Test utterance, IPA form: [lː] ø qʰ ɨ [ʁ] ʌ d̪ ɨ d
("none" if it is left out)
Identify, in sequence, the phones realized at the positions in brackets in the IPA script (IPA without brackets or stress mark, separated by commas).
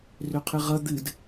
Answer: r, ʁ